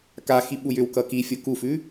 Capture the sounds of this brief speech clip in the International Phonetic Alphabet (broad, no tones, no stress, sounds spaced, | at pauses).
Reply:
k a x i ɓ u j ʏ w k ʌ k i fʲ o k u f ʉ